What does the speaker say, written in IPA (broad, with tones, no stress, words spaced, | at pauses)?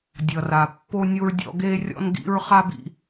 dʲʌ˨ra˨ pːo˦nʲo˦ɹdʲɔ̰˦ ɡe˦rʲɔ̰˦nɡḭ˦ɹ χa˦bḭ˦